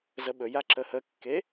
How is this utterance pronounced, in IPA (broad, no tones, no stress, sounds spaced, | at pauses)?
z ə ɓ ɵ j a ǁ ə h ə kː e